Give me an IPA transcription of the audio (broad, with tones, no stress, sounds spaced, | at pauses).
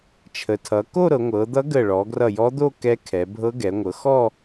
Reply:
t͡ʃʰ ə˩˧ tʰ ʌ˩˧ k o˥˧ ɾ ɤ˩˧ ŋʷ ɤ˩˧ d̪ ʌ˧˥ ɡ ə˧˩ ɭ ɔ˩˧ ɡ r ʌ˧˩ j ɔ˧˥ d̪ o˥˧ k ɛ˧˥ kʰ ɛ˩˧ bʱ ɤ˧˥ ɡ ɛ˩˧ ŋʷ ɤ˩˧ x ɔ˥˧